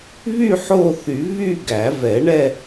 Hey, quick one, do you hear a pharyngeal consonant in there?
yes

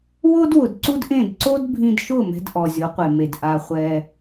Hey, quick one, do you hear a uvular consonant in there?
yes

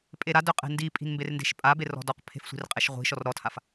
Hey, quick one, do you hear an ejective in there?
yes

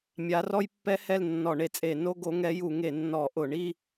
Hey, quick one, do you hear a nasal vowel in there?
no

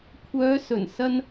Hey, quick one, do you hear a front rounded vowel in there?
yes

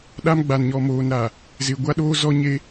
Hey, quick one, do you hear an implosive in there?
yes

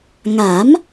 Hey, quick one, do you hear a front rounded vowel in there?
no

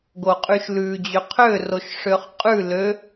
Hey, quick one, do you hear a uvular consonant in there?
yes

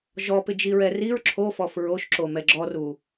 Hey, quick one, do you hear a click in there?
yes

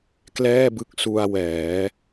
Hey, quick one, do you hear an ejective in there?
no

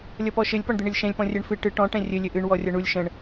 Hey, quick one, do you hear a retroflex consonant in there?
yes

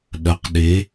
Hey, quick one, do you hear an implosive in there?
yes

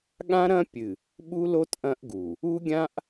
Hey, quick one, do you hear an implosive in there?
yes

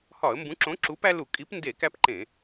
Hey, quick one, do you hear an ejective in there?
yes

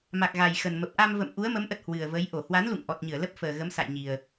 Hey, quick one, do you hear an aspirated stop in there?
no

